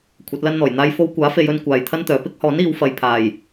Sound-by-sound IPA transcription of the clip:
kʷʰ ɐ˨˥ t̚ l ɐ˥ n n̪ ɔː˨˩ j n̪ aː˧ j f o˧ w kʷ aː˨˥ f e˨ j ɵ˧ n kʷ aː˨ j t̪ʰ ɐ˥ n t̪ œː˨ p ɪ˥ k̚ h ɔː˨˥ n iː˨˧ w f ɐ˨ j pʰ aː˨˩ j

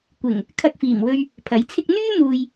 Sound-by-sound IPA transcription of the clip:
kʷ ɪ˨˩ ŋ | kʰ ɐ˧ k̚ f iː˨˩ m w ɵ˧ ɥ | pʰ ɐ˨˥ j t͡sʰ ɪ˥ k̚ n̪ yː˥ m uː˨ j

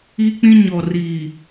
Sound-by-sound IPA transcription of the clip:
i˦ k͡p ĩ˦ ɲ ɔ˨ r i˨

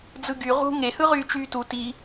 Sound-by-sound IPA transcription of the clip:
d͡z ɯ ɡ y ʁ ṳ ŋ e h ɯ ʁ yː t͡ʃ yː t u t i

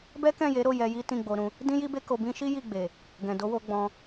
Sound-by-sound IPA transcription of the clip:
b ɛ˦ k ɛ̃˦˨ j e˨˦ ɾ o˦˨ j ɛ˧ j i˦ t ĩ˦˨ ɡ͡b o˧ ɾ ũ˧ | d ĩ˦ j i˦ b e˦ k o˧ b ĩ˦ ʃ i˦ j i˦˨ ɡ͡b e˨ | ɡ ɛ̃˨ d o˨˦ w o˧ ɡ͡b ɔ̃˧

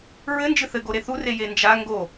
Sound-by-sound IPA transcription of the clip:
ɹ ɘ n d͡ʒ ɨ θ ɘ ɡ o ɾ e θ u r e j e n d͡ʒ a ŋ ɡ o

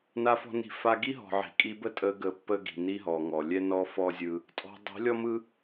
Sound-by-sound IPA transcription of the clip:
n a˧ f ɔ̤˧ n i̤˧ f a˧ ɡ i˦ ɦ ɔ̤˨ ʕ i̤˨ kʼ i˧ b ə˦ tʼ ə˧ ɡ ə˧ pː ə˦ ɡ i̤˨ n i˦ ɦ ɔ˨ ŋ ɔ˨ lʲ ɛ˦ n ɔ˦ f ɔ˦ zʲ ɯ˧ | tʼ ɔ̤˧ dˤ i̤˨˦ lʲ ɔ˦ m ɯ˦

